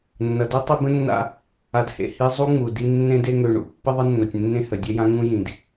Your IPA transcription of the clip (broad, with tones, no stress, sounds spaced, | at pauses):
nː ʌ˩ d u˥ tˤ i˦ b ə̃˥ nː a̰˦ | a˨ d h ḛ˩ h i˦ zˤ u˥ ŋ͡m u˩ d i˦ nː ẽ˦ d e˦ ŋ ø˨ ɳ ṵ˩ pː ə˥ ðˤ ə˥ nː ʌ˨ tʲ nː ẽ˥ h ə˨ dʲ e˥ j ã˥ ŋ ũ˥ j ĩ˨ d